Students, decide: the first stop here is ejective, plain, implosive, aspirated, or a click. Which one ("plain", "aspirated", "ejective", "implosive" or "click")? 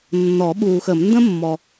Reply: implosive